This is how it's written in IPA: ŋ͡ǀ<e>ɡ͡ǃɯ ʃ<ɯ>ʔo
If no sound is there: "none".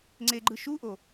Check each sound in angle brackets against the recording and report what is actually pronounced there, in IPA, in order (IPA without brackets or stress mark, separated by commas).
e, u